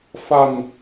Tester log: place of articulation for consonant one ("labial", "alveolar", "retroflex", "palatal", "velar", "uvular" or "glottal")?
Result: labial